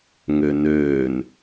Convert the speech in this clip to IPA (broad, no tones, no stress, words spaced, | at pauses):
ŋønøːn